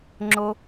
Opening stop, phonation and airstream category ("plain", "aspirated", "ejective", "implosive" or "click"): click